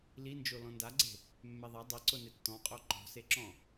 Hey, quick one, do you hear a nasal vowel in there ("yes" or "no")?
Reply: yes